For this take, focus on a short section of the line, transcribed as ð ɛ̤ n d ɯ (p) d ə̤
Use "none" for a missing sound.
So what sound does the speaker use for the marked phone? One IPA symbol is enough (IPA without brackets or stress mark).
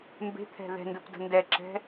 p